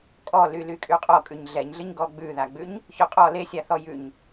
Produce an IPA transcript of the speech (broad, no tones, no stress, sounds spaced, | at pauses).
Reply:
kʼ ɔ l y l y kʼ y qʼ ɔ kʼ ʉ ɲ ɮ ɛ ɲ ɮ ɨ ɲ ɡ ɔ ɡ͡b ʉ ð a ɡ͡b ʉ ɲ | ç ɵ qʼ ɔ l e sʲ a θ ɔ j ʉ ɲ